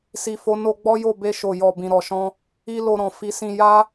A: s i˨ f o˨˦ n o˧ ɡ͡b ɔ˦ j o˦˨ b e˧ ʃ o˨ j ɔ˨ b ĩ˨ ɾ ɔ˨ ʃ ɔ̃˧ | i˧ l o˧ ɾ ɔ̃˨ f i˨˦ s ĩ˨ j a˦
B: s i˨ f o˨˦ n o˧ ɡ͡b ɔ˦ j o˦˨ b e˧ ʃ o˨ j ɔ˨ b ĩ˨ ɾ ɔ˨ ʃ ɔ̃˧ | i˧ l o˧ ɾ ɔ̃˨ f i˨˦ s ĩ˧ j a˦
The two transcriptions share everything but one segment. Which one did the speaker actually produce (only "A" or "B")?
B